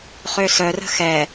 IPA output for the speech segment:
χøsœrə̤ xɛ

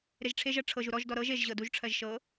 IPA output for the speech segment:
ɾeʒʈ͡ʂʰeʒɜ ʈ͡ʂʰɤʒu ɾɔʒdɔ ɾɤʒ eʒʑɤ duʒʈ͡ʂʰɜʒ ʃɤ

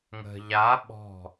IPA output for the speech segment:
ŋə̤ ʎa ɓɔ̤

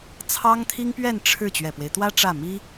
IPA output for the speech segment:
t͡sʰɑ˥ŋt̪ʰi˥ŋpɥɛ˥˧n ʈ͡ʂʰɻ̩˥˩ t͡ɕɥɛ˨˩pwe˦ɪ̯t̪wä˥ ʈ͡ʂä˥˩mi˥

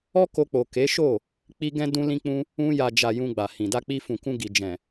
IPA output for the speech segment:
ɔ˦ko˧k͡po˨ ke˨˦ʃo˦˨ | k͡pi˧ ɡɛ̃˦ dũ˦lĩ˦k͡pũ˦ | ũ˧ja˨d͡ʒa˨ jũ˧ɡ͡ba˨hĩ˨ da˧k͡pi˧fũ˨kũ˧ ɡi˨ d͡ʒɛ̃˨

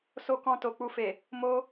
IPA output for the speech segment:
so˧kɔ̃˧ to˨k͡pu˧fe˨ | mo˧

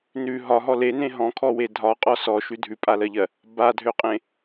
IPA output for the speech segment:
nʉ ɦɒɦɔ lenẽ ɦɔ̃kʰɔwe dʱɒqʼɔ sɔʃʉ dʱʉpʼalɜʎɜ | badʱøqʼẽ

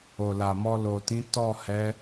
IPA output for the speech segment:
o˨la˨mɔ˧ lo˨tĩ˨˦ tɔ˦˨hɛ˨˦

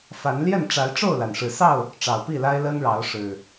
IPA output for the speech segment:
fa˨˦nljɛ˥˨nʈ͡ʂa˨˦ɪ̯ ʈ͡ʂo˥˨ʊ̯la˩nʂɻ̩˨˩sɑ˥˨ʊ̯ | ʈ͡ʂɑ˨˩ʊ̯pi˥˨la˦ɪ̯ lə˦nɻɑ˨˦ʊ̯ ʂɻ̩˨˩

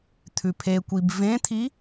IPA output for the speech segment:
t̪ʰʉpʰekʷib vẽt̪ʰi

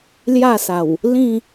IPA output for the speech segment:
lja˥˧sa˨˩w | lĩ˥˧

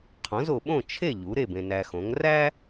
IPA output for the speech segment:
qʰõ˩˥zo˨ɓõ˥˨ t͡ʃʰe˥˨ ʎu˩˥ɾe˥˨bẽ˨ næ˨xõ˩˥ŋ ræ˥

